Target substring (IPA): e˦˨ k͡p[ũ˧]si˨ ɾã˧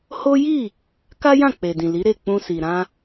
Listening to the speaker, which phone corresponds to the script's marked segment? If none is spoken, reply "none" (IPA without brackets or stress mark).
ũ˧